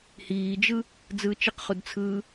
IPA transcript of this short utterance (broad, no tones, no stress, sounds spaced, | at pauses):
h iː d͡ʒ ɯ | d͡z ɯː t͡ʃ ɪ q χ u d t͡sʰ ɯː